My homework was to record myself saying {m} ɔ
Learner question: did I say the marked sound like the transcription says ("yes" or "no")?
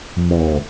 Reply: yes